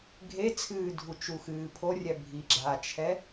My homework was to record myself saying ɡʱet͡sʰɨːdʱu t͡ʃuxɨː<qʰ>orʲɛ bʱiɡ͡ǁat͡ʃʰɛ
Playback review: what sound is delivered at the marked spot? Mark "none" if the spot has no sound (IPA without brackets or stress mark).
pʰ